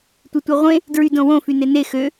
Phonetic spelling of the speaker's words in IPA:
tʷ e tʷ e ʁʷ ẽ | d ɹ y d õ w õ f y n e n e x ø

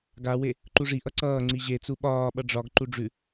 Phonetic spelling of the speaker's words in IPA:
ɡ a w e | ǃ u ʐ i ʔ ʌ ǀ ʌː ŋ͡ǀ i ʑ e t͡s u ɓ ɒː ɓ ʌ ɖ͡ʐ ɒ ɡ ǃ u ɖ͡ʐ ʉ

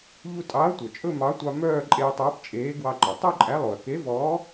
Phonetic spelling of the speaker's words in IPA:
ʎ u˧ tʼ ɑ˨˥ ɐ̯ tʷ œ˩ t͡ʃʼ ɵ˥˧ m ɑ˨˥ tʷ ɑ˧ m œː˥˧ ǃʼ eː˧ tˤ ɵː˨˥ p t͡ʃʼ eː˨˥ ɡ w ɑ˧ ǃ ɔ˩ tˤ ɵ˥˧ ǃʼ æ˨˥ lˠ o˩ ɐ̯ k e˨˥ v ɔː˨˥

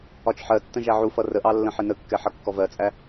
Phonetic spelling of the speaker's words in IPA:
ɒ t͡ʃ ħ ɜ tː ə̃ ʒ æ ʕ u f ʌ r ə ʔ ɑ lː ə̃ ħ ɪ n ə kː ɛ ħ ʌ kː ɔ v ɜ t͡sʼ æ

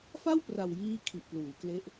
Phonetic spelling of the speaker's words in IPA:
f a˥˩ w p r a˨˩ w j iː˦˥ kʰ i˨˩ ʔ p l uː˩˦ k l e˦˥ ʔ

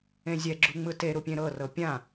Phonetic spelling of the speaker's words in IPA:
ẽ zʲ ɛ ɡ͡ǁ u ŋ͡m ɯ t e ɾ u pʲ ẽ ɾ ɤ r ɤ pʲ ã

